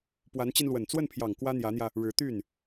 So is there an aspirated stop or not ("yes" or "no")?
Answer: yes